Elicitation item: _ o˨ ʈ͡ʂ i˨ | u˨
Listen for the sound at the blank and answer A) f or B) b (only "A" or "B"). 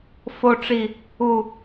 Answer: A